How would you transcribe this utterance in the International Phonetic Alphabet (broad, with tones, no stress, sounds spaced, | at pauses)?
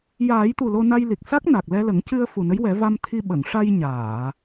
j aː˨˩˦ j t̪ u˨˩ l o˧ n a˧ j l i˨˩ k̚ s a˦˥ k̚ n a˨˩ k̚ l ɛ˧ l ə˨˩˦ ŋ c ɨ˧ ə̯ f u˨˩ n ə˧˥ j w ɛ˨˩˦ v a˧ m t̪ʰ i˧ ɓ ə˨˩˨ ŋ ʂ a˧ j ɲ aː˨˩˨